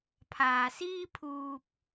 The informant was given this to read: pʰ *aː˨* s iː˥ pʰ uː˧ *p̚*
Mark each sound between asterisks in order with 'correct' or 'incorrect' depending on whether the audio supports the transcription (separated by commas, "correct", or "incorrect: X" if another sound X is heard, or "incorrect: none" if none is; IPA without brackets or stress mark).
correct, correct